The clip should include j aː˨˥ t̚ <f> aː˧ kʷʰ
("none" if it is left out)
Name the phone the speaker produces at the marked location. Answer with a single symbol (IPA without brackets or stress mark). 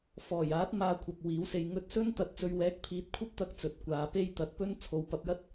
m